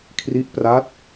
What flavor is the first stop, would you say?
aspirated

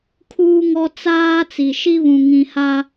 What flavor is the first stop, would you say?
aspirated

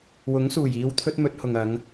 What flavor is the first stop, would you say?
aspirated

